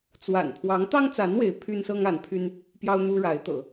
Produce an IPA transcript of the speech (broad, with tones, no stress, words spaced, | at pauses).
t͡swa̰˨˩n pʰwɑ˧˥ŋt̪ɑ˥ŋt͡sa˧˥n we˧˥ɪ̯ pʰy˥nsɤ˥ŋ a˧˥npʰy˥n | pjɑ˥ʊ̯n̪u˥ɻa˧˥ɪ̯t̪ɤ̰˨˩˦